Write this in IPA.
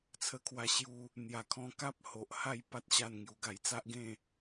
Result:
t͡sʰə˧kʰwa˧ɕju˧ | n̪ja˨˩kʰɔ̃˧ka˦p̚ ho˨ʔ ha˥˧j pa˦t̚ɕa˥˧n ŋju˧ɡa˧j t͡sa˦ʔɡẽ˥˧

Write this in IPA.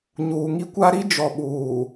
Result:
ɲuː˨ŋi˦kʷa˦ ɾi˦ d͡ʒɔ˨ɓuː˨

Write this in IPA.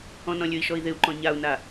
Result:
ɔ̃nɔ̃lʲɵi̯ʃɔi̯ ðɪu̯ǃɔ̃ ɲau̯na

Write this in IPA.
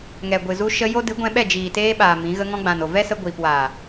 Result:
ŋɛ˨ɡʷɨ˨zu˧ ʃə˧jo˦ dɨ˨˦ɡʷɛ̃˧ɓɛ˦˨ d͡ʒiː˨teː˧ɓaː˨ mĩ˨˦ ɣə˧ŋɔ̃˧ɡ͡bã˨n o˨vɛ˦sə˧ ɡʷiː˨pwaː˨

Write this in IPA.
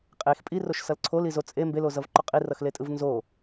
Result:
qʼex pʼiroʃsʌl ǀʰolizo t͡sʼe mbelozʌvǃo qʼirʌxletʼɯv nzo

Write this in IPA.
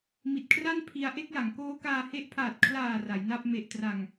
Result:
mi˨˩t̚kʰra˥˩n pʰi˧a̯ ʔe˥˩k̚ja˩˦ŋkoː˦˥kaː˧ he˦˥ʔpʰaː˨˩t̚ kʰlaː˨˩ ra˩˦jna˥˩p̚ me˨˩ʔtra˨˩ŋ

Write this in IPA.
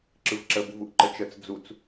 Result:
ǁɯvǁəbuvuʔ ǃət͡ʃət͡s d͡zut͡s

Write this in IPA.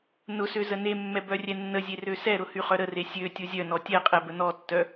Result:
nʊsø zənemːɛ bœrʲɛnːəzʲe røsɛɾʊ hyχœɾəre sʲø tʲʊzʲœnɔ tʲɛqʼɛ bənɔtːœ

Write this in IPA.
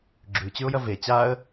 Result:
ɡ͡ǁʉt͡ɕʉʊ̯jɐ ve t͡ɕaə̯

